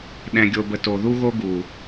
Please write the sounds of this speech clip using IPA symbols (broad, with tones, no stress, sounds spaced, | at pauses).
ɗ ɛ̃˨ ɡʲ o˨ b ə˨ t o˨ ð u˦ ɣ o˦ ɡ u˨